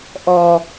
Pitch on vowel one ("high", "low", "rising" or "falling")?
low